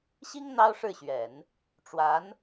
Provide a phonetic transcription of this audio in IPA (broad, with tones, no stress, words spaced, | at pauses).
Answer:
ɕi˥ŋ n̪ɑ˥ʊ̯ʂɻ̩˥˩ɕɥɛ˨˩˦n | ʈ͡ʂwa˧˥n